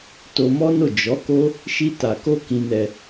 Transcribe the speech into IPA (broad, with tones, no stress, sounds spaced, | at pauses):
t o˧ m ɔ˦ n o˦˨ d͡ʒ ɔ˨˦ k o˦ | ʃ i˧ t a˨ k o˧ k ĩ˧ n ɛ˧